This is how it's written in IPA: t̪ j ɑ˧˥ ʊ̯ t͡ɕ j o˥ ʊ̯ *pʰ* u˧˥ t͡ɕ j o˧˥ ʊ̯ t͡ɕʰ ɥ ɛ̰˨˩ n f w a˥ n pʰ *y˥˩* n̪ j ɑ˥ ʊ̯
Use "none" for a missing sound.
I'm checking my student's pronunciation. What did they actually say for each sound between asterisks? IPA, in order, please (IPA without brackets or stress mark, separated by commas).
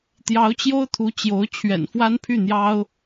t̪ʰ, y˥˩